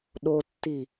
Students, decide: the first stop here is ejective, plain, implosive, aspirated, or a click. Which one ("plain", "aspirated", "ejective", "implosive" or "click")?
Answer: implosive